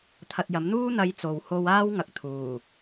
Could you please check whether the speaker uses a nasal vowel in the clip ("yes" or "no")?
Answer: no